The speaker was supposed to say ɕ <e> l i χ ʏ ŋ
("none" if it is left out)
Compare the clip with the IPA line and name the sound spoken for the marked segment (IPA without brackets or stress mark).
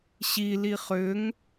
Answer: i